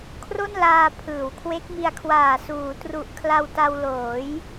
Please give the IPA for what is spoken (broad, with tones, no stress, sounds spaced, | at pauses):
kʰ r o˥˩ n l aː˧ pʰ ɯː˩˦ w kʰ w e˦˥ k̚ m i˧ a̯ kʰ w aː˨˩ s uː˩˦ t r u˨˩ ʔ kʰ l a˧ w t a˧ w l oː˩˦ j